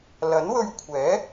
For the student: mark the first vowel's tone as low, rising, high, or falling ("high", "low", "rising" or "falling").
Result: rising